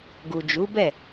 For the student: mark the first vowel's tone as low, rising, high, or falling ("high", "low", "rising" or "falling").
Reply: low